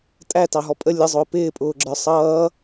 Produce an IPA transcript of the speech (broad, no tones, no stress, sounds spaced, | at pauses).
tʼ æ t ɑ ɦ ɔ pʼ ə lʲ ə zˤ ʊː p ɪː pʼ ʊː ɡ͡ǁ ə˞ sˤ ʌː